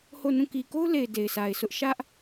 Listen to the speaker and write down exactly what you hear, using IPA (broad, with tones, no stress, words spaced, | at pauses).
ho˦˨nũ˦˨ ki˨ko˦ʊ̯le˨ɪ̯ de˨ɪ̯sa˨ɪ̯sʰʊ˦ʔ ʃä˦ʔ